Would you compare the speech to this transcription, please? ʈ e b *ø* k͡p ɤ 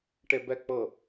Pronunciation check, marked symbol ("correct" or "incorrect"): incorrect